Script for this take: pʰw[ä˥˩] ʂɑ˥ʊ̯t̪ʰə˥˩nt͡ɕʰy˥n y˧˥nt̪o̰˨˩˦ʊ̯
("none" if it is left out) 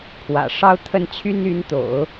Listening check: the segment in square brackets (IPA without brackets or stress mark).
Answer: ä̰˨˩